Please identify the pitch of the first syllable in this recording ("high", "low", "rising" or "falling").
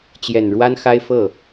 low